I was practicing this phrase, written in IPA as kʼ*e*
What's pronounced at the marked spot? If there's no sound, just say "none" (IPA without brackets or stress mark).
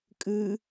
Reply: ɨ